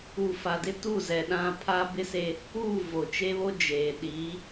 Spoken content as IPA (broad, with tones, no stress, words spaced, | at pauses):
u˨ fa˨dɪ˦tu˦˨zɛ˨ ɗã˦ pʰaː˦bɪ˦se˦ | uː˦˨ vo˨t͡ʃe˦βo˦ d͡ʒeː˨ ɗiː˨˦